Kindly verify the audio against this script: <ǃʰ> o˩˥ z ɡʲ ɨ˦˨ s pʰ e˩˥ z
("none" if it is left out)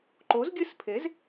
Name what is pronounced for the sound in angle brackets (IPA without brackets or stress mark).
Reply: ǃ